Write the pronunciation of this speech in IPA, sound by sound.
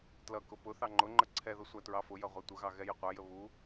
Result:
t l ʌ k ʊ p ʊ θ ɑ ŋ͡ǃ ʊ ŋ͡ǃ ə ǀʰ ɛ ð ʊ sʷ æ t ɹ ɑ f ʊ j ʌ ʁʷ ɛ tʷ ə ɣ ɑ ɣ ɛ j ə qʷ æ j ə β u

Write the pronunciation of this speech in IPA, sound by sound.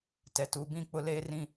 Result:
t ɛ˨ t u˨˦ b ĩ˦˨ k͡p ʊ˦ l eː˦ r ĩ˦

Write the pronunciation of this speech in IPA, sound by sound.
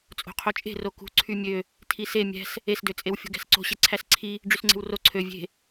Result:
t͡sʼ o̤ qʰ o t͡ʃʼ e̤ r o k ṳ ǀʰ y mʲ ø | tʰ i s e mʲ æ̤ s | e s d ø t͡sʼ e w fʲ o̤ ɡ æ̤ s ǀ o̤ ɕ e ǀʰ æ s ǀʰ i | ɖ͡ʐ y s ŋ͡ǀ e̤ w r o ǀʰ ø vʲ e̤

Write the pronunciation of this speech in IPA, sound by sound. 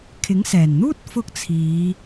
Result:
kʰ ɪ˨˥ ŋ s ɛː˨˩ n n̪ uː˥ t̚ f ʊ˥ k̚ t͡sʰ iː˨˧

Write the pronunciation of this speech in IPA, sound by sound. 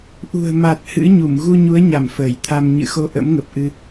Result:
ʔ ṳ˨˩ ə̯ m a˨˩ t̚ h ɨ̰˧˥ ɲ u˧˩ m ɣ u˧ ɲ u˨˦ ə̯ ɲ a˧˩ m f əː˧˩ j t̪ʰ a˧ m ɲ ɨ̰˧˨ x o˧ ʔ ə̰˧˥ m ŋ ə˨˩ p̚ ʔ ɨ˧

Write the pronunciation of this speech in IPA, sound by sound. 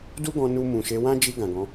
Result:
d u˦ ɡ ɔ̃˧ n u˧ m ũ˨ ʃ e˨˦ w ã˦ d͡ʒ i˧ ɡ ã˨ ɡ ɔ̃˨˦

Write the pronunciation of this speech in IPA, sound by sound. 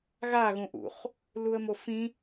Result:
ɣ a ɣ ũ ʔ ṵ χ | l u ə̯ m o f ĩ

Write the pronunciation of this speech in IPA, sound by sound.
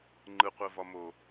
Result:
ŋ͡ǃ ɯ qʷ ɛ v ɒ m o

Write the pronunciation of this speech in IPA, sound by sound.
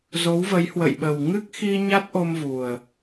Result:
z o˨˦ w v ə˨˦ j h w ə̰˧˨ j ɓ ə˨˩ w ŋ ɨ˦˥ k̚ x i˧ ɲ a˦˥ t̚ ʔ o˧ m v u˨˩ ə̯

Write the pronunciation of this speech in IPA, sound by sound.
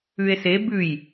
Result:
ʉ e̯ s e b ʉ j

